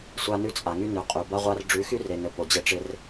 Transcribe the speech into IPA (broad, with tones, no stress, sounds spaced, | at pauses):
sʷ a˦ n ʉ˦ t͡sʼ a˨ ŋ y˦ n ʉ˨ qʼ ʉ˨ b a˦ ʁʷ a˦ r ɖ͡ʐ ʉ˨˦ x y˦ r e˨ n ɘ˨ p o˨ d͡ʑ ɘ˦ ʈ͡ʂ ɪ˦ r